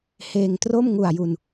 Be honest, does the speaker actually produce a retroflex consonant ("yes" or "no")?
no